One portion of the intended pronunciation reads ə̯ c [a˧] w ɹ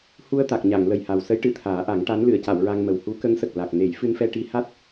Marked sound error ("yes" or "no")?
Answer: yes